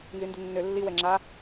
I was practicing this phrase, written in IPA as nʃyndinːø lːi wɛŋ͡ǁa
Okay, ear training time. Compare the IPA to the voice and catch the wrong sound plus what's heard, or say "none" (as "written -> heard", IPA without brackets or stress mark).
ʃ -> z